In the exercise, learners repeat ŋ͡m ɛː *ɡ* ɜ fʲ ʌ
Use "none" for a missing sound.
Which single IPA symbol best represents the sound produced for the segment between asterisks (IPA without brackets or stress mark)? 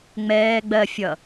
ɡ͡b